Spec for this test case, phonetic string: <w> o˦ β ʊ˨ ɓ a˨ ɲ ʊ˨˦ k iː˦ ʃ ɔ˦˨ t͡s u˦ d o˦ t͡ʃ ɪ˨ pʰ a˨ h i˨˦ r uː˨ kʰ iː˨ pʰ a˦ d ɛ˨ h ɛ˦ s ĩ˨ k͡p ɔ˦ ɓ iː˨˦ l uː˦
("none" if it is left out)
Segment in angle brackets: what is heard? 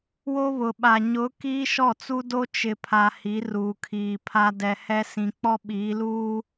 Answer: w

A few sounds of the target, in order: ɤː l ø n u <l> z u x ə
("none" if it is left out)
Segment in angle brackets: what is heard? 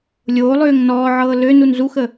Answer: n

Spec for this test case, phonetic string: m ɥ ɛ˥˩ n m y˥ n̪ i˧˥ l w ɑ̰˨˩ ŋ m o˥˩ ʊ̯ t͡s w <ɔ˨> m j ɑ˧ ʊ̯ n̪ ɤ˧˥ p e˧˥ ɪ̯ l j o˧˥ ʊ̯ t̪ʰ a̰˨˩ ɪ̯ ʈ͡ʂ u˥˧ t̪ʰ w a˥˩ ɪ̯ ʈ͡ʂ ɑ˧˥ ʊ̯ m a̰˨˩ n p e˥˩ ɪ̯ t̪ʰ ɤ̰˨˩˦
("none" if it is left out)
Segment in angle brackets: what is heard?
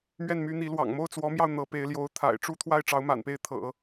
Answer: ɔ˧˥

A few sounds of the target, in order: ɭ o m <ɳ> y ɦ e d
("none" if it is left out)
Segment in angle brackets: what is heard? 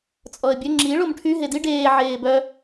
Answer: ʈʰ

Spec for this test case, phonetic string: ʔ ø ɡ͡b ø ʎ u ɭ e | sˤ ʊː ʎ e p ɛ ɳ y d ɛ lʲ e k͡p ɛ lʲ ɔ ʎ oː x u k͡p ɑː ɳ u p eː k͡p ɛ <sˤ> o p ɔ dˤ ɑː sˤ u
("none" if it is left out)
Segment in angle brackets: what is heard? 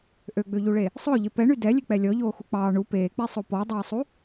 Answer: sˤ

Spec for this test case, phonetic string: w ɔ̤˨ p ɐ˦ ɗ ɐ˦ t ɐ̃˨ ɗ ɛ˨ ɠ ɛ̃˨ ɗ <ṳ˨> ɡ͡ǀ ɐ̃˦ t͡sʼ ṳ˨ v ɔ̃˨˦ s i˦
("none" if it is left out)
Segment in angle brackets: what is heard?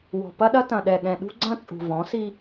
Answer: ṳ˦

